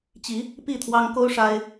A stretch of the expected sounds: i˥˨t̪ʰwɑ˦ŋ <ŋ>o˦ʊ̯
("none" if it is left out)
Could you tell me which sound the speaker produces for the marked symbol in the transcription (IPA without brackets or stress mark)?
k